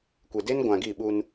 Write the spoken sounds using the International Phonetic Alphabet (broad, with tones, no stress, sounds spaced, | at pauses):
kʷ e˨ d e˦ n ɡʷ ã˨ ɡ i˦˨ ɓ u˦ n